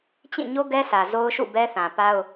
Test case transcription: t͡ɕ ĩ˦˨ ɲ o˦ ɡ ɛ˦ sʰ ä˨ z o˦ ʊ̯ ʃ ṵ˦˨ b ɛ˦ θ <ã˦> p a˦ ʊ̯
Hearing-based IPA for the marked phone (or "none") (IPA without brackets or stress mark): ã˨